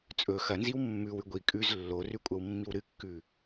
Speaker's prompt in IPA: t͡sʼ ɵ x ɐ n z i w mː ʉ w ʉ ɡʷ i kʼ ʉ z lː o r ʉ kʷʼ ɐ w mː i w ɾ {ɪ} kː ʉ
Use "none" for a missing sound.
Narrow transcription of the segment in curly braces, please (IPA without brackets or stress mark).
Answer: ɨ